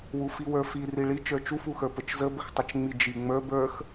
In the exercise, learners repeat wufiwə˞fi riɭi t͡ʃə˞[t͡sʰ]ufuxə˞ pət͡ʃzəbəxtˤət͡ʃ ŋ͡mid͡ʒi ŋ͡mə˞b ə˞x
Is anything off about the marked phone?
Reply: yes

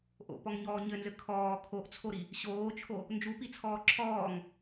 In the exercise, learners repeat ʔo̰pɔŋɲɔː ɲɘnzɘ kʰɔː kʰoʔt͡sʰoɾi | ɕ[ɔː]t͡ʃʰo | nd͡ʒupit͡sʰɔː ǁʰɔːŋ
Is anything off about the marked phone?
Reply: yes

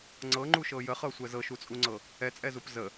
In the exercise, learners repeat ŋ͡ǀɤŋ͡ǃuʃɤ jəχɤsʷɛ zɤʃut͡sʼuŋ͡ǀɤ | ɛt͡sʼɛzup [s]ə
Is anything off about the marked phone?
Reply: yes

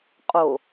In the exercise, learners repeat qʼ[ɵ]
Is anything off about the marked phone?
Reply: yes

